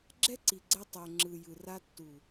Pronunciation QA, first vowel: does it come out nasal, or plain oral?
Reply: oral